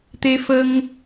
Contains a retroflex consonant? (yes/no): no